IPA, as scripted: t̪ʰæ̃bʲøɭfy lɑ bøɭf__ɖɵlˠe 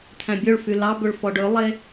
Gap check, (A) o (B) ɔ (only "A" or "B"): B